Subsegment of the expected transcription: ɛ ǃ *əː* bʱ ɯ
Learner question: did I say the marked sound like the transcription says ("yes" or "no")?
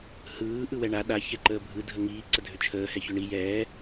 yes